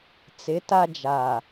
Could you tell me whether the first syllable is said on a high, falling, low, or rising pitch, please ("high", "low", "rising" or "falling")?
rising